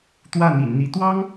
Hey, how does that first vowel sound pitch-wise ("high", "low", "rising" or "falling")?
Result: falling